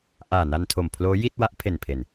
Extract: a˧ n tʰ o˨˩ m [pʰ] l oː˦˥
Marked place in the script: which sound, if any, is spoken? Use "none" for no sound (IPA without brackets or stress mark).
pʰ